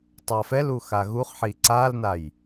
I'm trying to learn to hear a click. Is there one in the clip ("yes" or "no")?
yes